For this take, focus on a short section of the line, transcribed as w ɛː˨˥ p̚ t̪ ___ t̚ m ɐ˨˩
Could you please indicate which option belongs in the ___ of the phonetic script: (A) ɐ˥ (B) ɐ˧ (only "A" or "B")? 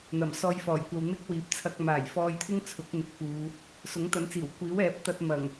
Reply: B